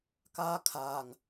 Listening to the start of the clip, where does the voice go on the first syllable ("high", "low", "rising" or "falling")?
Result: high